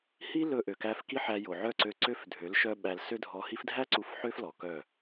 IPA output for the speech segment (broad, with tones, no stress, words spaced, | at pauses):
hi˦ lɵ˧ʔø˨kæ˧f ki˦ħæ˧jo˨ ʕœ˦˨ǀø˧ǀø˦f dʱø˨˦lʃœ˦ɓæ˧l sø˦dʱɔ˧ hi˧fdʱæ˦ ǀu˧fħø˦f lɔ˨kœ˦˨